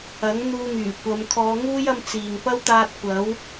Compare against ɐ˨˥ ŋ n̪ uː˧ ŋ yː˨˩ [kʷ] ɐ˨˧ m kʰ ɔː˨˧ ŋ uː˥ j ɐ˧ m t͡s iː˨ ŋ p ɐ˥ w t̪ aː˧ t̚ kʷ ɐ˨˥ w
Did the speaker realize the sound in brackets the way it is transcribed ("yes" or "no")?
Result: yes